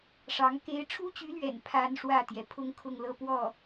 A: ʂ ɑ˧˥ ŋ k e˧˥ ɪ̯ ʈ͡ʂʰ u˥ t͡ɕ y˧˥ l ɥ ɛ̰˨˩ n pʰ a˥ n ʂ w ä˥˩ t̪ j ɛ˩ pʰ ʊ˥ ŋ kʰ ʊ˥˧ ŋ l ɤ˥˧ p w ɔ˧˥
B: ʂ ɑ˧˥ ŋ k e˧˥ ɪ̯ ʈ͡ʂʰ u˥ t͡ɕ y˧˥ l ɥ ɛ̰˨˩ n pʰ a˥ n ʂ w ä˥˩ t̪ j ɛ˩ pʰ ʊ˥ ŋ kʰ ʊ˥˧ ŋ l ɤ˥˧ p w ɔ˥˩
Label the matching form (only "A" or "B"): B